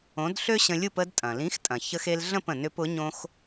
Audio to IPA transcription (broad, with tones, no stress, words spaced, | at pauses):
õ˩˥d ɬø˥ɕə̃˧lʲu˥˩p ə˧dtʼɐ̃˩lĩ˩˥xtʼɐ̃˩ çə˧xe˧lɮə̃˥˩p ə̃˩nʏ˧pʊ˩˥ ɲõ˧x